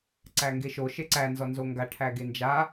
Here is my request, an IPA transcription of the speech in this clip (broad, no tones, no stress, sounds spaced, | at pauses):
ǀ æ ŋ ɡ e ʃ o ʃ e ǀ æ n z ɔ n z o ŋ ɡ a ʈʰ æ ɡ e n d͡ʒ a